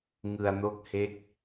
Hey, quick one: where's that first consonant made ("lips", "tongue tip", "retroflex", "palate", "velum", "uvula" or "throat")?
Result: velum